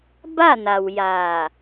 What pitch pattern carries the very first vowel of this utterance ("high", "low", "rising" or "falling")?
falling